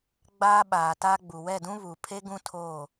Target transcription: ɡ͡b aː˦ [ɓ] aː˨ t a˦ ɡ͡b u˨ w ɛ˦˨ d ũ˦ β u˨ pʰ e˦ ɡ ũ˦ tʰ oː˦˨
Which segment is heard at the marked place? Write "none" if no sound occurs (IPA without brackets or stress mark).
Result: ɓ